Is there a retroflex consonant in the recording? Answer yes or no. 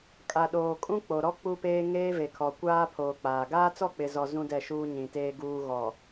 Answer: no